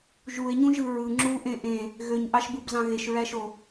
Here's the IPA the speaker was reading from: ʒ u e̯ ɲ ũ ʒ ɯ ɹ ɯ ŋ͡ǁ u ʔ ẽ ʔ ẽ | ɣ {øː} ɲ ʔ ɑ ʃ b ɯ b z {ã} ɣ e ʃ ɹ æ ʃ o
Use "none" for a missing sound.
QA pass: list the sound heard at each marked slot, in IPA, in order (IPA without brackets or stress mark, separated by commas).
ø, ɑ̃